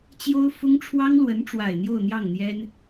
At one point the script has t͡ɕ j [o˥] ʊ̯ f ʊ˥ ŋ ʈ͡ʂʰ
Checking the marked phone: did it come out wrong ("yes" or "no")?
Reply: no